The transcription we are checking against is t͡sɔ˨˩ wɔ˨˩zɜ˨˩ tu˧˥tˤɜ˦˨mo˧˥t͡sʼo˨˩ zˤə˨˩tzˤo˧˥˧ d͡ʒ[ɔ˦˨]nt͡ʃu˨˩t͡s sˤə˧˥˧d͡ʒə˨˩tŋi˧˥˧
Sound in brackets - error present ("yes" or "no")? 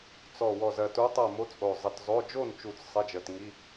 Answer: yes